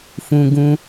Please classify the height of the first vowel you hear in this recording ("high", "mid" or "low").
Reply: high